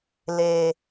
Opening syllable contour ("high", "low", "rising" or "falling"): low